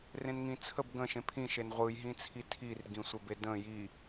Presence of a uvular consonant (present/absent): present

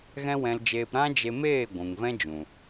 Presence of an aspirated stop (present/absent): absent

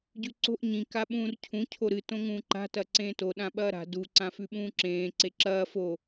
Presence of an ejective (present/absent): absent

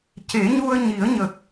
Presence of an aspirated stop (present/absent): absent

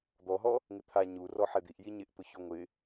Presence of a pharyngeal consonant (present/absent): present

